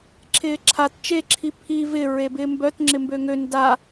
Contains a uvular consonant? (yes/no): no